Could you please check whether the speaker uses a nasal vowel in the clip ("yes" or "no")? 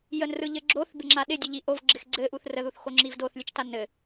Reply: no